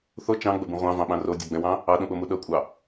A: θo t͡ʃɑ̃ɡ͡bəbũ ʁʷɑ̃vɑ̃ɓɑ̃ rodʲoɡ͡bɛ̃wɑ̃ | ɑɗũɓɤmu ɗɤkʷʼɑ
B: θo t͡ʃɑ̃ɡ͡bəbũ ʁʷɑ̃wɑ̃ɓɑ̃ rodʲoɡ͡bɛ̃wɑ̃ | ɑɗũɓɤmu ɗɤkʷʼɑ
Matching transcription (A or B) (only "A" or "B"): A